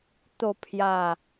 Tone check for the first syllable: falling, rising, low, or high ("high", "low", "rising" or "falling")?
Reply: falling